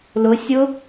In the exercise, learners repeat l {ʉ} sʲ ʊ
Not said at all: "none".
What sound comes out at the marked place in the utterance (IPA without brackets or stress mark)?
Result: ʊ